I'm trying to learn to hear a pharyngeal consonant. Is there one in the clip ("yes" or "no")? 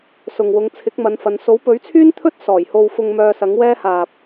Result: no